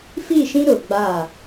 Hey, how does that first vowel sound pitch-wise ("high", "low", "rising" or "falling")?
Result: falling